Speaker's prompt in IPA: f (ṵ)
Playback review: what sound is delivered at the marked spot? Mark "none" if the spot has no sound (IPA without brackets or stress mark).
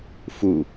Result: u